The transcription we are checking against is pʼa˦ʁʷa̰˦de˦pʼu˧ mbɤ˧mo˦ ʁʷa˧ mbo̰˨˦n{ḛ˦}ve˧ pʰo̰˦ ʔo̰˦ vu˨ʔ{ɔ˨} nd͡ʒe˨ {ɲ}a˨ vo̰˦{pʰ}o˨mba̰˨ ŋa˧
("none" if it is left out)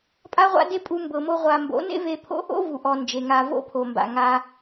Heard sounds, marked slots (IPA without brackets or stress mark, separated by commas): ḛ˦, ɔ˨, ŋ, pʰ